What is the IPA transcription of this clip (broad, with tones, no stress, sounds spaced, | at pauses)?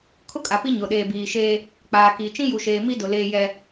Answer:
kʰ ʊ˦ kʼ a˨ p i˦ ɲ ʊ˨ ɗ eː˨ b iː˨ ʃ eː˦ | k͡p aː˨ k iː˨ t͡ʃ ĩ˦ j u˨ ʃ eː˨ m i˦ d ʊ˨ l eː˦ j ɛ˦